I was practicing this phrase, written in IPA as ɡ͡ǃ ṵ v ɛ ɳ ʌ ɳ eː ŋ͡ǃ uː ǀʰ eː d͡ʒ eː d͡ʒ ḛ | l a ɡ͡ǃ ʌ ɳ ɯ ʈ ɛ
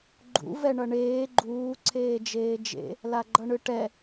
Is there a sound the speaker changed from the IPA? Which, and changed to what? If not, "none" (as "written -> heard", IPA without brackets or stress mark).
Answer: ŋ͡ǃ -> ɡ͡ǃ